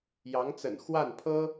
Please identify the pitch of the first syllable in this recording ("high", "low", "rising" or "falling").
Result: rising